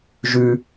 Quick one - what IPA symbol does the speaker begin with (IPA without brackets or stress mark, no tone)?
ʒ